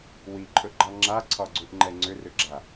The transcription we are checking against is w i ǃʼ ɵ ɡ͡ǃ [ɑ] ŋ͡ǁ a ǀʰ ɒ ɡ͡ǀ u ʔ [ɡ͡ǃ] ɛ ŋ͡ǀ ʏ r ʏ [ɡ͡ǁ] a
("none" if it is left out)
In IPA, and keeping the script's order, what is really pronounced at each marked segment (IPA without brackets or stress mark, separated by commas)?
ɑ, ŋ͡ǃ, ɡ͡ǁ